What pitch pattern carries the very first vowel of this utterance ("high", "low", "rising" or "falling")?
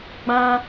high